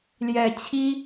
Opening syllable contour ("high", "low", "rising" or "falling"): low